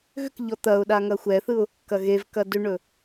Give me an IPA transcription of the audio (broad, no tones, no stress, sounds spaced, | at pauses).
ɣ ʏ k ʎ ɔ t̪ ɐ ʊ̯ ɗ a ŋ ɐ xʷ ɛ θ ɯ ʊ̯ | k ɐ ɣ e v k ɐ d ʏ ɳ ɵ